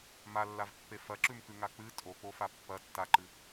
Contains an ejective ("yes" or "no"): yes